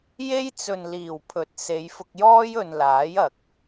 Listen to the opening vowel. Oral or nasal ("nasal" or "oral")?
oral